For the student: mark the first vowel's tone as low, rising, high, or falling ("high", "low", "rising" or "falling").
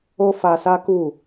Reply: high